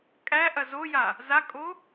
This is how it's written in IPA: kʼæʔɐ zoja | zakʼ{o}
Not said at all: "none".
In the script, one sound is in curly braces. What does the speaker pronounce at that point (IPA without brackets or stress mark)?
o